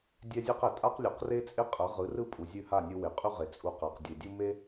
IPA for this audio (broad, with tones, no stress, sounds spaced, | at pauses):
dʲ ɛ˦ zʲ ɛ˦ q ɛ˨ tʼ a˦ q lʲ ʉ˨ q r e˦ t͡sʼ e˦ qʼ ɐ˨˦ ʁ ɯ˨˦ r ɯ˦ pʼ u˨ zʲ ʉ˦˨ h a˦˨ nʲ ɯ˧ w e˨ qʼ ʉ˦ ʁ e˨ t͡sʼ u˧ q a˨ q dʲ e˨ dʲ u˦ m e˦